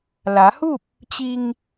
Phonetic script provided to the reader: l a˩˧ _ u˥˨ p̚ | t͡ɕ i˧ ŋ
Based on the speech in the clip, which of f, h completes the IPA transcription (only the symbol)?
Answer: h